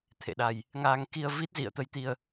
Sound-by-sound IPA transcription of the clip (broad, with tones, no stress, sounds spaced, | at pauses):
t̪ʰ ḛ˧˨ ɗ a˨˩ j | ŋ aː˧ ŋ k i˧ ə̯ v i˦˥ t̚ z ḭ˧˨ ə̯ t̪ ə˨˦ j t̪ i˧ ə̯